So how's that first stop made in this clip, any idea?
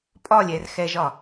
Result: ejective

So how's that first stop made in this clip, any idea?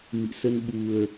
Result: implosive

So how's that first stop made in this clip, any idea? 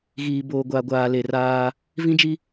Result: plain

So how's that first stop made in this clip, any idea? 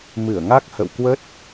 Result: plain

